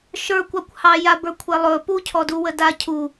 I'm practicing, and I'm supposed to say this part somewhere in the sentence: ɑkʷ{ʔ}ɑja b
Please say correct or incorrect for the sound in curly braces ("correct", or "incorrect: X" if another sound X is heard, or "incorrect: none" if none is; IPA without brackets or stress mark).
incorrect: h